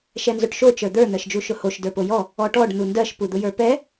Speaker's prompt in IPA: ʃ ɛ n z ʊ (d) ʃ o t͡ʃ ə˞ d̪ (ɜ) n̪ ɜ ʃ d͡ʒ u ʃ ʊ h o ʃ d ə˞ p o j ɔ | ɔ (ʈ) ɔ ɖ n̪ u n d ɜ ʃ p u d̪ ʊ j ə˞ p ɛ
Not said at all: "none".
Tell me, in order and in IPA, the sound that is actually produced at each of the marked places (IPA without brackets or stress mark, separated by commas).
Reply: ʈ, ə˞, ʈ